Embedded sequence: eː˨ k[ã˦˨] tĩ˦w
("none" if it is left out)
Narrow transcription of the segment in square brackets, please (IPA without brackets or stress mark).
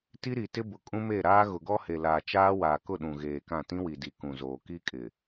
ã˦˨